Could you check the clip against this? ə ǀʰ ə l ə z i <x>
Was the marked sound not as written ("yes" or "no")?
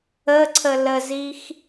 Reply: no